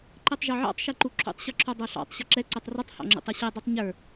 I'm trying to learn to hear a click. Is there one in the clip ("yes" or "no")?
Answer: yes